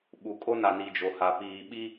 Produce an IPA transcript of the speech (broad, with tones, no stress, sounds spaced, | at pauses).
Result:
ɓ u˨ kʼ o˦ n a˨ n i˨ d͡ʒ o˨ h a˨ p iː˨ ɓ i˦